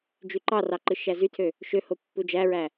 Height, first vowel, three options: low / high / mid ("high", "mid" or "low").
high